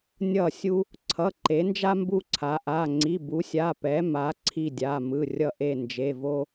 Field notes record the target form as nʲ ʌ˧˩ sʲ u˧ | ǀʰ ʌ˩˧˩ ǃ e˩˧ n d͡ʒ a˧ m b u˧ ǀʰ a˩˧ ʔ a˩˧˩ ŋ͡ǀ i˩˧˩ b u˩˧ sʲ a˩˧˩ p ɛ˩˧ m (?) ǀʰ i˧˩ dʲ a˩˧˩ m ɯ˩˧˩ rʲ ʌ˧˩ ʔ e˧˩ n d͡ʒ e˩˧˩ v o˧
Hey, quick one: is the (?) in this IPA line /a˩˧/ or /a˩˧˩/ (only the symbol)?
a˩˧